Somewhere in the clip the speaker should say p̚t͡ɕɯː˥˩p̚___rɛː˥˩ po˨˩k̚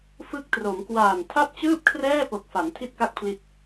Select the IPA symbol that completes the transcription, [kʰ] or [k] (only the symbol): kʰ